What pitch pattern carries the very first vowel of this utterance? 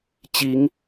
rising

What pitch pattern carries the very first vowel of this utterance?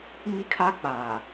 high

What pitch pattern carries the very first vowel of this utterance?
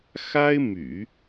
high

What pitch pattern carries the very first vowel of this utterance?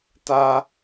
high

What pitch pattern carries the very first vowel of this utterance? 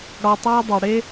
low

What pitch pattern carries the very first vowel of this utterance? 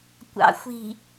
rising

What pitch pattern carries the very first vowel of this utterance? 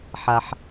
low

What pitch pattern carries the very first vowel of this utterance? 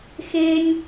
high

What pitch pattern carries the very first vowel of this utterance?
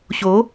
rising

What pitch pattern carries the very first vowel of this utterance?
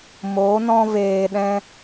rising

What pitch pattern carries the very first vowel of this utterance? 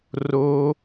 high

